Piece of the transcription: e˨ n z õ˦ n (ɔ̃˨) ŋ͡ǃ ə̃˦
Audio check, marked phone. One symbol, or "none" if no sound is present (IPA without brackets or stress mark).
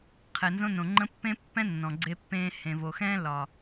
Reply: õ˨